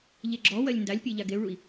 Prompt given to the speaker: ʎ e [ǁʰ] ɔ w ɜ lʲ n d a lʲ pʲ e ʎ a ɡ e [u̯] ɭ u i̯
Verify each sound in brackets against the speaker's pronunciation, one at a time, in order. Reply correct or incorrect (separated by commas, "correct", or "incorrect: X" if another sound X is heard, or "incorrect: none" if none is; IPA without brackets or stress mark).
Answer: incorrect: ɡ͡ǁ, correct